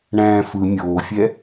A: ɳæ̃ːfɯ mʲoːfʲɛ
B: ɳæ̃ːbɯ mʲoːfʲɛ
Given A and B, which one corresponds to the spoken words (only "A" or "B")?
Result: A